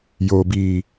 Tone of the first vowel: low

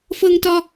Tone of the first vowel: high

